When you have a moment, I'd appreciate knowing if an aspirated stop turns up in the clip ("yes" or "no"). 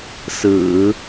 no